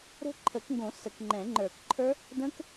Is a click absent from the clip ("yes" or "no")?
no